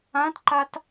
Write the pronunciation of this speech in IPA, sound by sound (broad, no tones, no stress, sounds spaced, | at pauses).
ã t ǃ a t